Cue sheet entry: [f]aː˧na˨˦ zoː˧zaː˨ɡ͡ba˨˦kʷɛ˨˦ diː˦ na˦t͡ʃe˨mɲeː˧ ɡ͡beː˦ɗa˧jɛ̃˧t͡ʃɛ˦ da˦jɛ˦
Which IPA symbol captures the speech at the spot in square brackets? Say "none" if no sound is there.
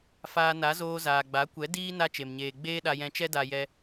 f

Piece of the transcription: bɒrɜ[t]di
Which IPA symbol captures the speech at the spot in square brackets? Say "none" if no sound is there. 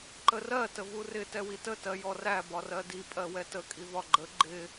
none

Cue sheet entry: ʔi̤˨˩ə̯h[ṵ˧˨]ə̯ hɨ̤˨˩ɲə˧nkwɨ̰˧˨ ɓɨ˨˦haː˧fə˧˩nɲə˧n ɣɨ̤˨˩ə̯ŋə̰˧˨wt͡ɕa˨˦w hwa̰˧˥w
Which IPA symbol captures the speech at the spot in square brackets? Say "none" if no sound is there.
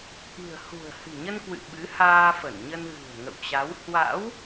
ṳ˨˩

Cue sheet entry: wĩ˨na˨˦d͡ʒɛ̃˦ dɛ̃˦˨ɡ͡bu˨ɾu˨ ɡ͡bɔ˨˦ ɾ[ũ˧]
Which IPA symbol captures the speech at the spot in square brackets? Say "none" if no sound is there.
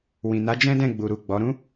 ũ˦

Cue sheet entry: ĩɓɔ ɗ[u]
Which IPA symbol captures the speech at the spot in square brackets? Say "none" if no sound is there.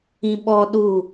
u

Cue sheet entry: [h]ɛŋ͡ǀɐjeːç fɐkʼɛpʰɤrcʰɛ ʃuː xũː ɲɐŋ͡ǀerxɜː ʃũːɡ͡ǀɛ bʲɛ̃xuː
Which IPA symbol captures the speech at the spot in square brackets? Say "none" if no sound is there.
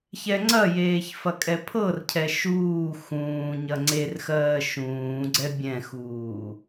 ç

